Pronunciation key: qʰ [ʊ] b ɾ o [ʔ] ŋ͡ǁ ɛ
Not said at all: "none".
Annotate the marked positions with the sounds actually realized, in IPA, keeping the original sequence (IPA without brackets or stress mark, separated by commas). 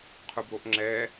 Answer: ʊ, ʔ